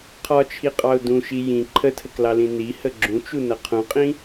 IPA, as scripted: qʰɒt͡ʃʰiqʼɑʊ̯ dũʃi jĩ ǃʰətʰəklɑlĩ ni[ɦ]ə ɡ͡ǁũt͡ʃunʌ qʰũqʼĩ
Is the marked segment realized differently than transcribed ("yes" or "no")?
yes